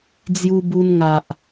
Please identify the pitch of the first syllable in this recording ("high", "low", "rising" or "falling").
high